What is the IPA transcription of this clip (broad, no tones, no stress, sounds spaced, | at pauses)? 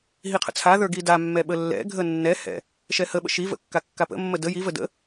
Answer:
ɦ i qʰ ə̰ t͡sʰ a ð ə˞ ɡ i d a mː ɛ ɓ ə lː ɛ̰ ɡʱ ə nː ɛ h ɛ̰ | ʃ ɛ h ə ɓ ə̰ ʃ i v ə̰ kː a kː a p ə̰ mː ə d ə j i v ə d ə̰